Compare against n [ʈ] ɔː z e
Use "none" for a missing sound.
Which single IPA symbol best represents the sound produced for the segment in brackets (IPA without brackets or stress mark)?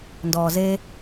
d